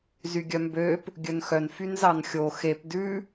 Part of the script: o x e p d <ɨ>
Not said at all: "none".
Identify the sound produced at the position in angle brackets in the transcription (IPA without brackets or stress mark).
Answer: ʉ